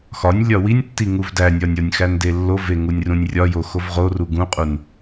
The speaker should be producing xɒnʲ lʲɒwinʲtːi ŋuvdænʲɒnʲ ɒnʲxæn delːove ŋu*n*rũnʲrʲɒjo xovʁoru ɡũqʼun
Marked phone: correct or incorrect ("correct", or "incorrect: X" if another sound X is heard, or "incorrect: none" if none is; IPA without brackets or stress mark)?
incorrect: nʲ